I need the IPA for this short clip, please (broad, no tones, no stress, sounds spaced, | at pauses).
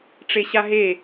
ʈ͡ʂ e ɕ a ɦ e